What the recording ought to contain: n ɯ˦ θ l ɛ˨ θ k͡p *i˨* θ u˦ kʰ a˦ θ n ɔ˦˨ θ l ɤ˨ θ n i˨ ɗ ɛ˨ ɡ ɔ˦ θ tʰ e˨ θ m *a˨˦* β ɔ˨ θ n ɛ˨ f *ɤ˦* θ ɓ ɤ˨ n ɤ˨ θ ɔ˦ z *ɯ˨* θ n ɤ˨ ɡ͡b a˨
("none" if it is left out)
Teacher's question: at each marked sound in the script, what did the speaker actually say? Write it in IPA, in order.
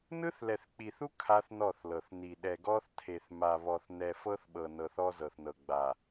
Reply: i˨, a˨, ɤ˦, ɤ˨

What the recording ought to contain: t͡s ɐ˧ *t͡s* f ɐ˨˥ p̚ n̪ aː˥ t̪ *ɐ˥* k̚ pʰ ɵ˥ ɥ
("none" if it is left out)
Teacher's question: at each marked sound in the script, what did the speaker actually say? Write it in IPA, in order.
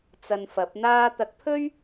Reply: n, ɐ˧

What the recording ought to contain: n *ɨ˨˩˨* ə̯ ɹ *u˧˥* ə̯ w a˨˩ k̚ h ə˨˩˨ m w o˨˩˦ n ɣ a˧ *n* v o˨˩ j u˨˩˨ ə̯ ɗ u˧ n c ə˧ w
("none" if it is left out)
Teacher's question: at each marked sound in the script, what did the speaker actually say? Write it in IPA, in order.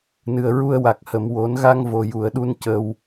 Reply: ɨ˨˩, u˧, ŋ

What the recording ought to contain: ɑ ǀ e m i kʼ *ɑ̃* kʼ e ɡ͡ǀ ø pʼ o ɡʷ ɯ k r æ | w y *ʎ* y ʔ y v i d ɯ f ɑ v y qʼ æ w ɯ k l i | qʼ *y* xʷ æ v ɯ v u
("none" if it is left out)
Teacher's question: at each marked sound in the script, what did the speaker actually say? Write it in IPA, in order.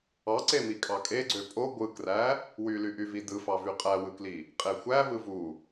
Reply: ɑ, l, e

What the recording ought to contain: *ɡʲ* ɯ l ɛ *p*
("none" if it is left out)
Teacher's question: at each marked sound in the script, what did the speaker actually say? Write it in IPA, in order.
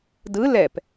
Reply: d, p

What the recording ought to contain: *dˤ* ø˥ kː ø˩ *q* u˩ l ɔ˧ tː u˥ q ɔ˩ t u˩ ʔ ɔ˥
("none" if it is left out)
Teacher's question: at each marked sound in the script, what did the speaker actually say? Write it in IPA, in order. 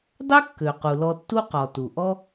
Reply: dˤ, q

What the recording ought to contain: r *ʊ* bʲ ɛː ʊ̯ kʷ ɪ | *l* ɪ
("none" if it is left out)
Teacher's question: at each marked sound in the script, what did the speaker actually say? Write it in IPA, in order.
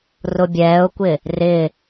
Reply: ʊ, r

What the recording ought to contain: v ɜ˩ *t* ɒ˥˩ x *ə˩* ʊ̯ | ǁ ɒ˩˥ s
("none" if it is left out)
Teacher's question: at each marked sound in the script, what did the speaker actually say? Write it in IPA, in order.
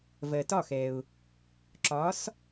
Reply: t, ɛ˩

